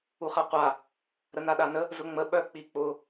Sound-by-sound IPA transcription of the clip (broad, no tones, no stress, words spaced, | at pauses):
uχaqʷa | ɾənaɗanə | zʊŋ͡mə ɓœk͡pik͡pʊ